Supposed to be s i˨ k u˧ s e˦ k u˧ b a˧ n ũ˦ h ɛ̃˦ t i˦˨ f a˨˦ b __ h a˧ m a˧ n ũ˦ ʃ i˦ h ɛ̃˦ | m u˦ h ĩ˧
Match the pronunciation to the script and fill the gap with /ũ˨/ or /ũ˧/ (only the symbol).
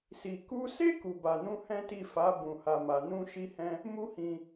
ũ˧